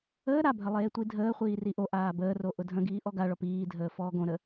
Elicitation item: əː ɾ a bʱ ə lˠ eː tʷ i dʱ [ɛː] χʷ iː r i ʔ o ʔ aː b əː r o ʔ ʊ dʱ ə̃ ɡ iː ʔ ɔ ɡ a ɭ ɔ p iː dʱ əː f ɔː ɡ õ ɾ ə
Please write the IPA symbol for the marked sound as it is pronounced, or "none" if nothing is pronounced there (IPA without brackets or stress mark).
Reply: əː